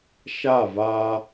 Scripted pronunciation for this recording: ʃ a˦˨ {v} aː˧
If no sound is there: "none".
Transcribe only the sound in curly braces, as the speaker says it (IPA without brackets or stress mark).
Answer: v